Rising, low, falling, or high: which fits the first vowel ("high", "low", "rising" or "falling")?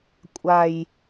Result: low